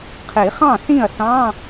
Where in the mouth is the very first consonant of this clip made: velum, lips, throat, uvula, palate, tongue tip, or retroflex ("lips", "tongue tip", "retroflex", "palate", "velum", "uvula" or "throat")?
uvula